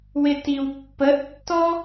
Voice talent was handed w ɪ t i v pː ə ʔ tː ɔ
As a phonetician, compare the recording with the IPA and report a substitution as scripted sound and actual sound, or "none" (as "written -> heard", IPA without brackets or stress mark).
v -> w